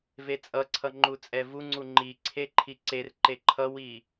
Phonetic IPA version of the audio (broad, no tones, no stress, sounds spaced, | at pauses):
v e t͡sʼ ʌ ǀʰ ʌ ŋ͡ǃ u t͡sʼ ɛ v u ŋ͡ǀ u ŋ͡ǃ i ǀʰ e ǃʰ i ǀ e r ǃ e ǃʰ ʌ w i